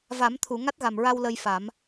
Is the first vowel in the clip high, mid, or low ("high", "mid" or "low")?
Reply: low